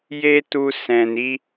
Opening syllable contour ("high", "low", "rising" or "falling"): high